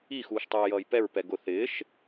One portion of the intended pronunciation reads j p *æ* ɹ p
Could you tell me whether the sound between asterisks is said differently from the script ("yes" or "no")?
yes